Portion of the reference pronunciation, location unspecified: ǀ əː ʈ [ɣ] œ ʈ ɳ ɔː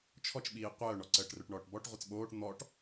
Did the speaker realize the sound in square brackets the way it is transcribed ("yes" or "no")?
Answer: no